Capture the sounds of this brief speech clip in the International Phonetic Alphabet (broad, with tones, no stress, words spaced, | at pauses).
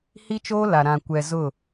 hi˦t͡ʃoː˦la˨ ɾã˨kʷɛ˨ zʊ˦˨